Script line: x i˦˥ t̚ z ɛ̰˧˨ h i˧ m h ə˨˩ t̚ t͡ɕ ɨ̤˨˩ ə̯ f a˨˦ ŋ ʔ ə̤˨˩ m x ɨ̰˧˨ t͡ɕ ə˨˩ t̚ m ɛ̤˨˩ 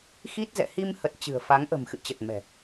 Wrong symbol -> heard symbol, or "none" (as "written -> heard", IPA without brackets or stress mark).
none